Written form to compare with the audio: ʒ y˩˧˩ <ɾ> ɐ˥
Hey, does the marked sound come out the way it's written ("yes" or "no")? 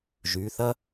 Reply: no